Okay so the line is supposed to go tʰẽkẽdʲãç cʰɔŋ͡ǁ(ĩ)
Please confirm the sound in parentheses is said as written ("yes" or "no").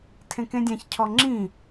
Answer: yes